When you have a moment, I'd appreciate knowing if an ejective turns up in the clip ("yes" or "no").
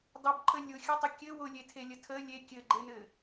no